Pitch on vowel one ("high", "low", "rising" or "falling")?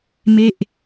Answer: falling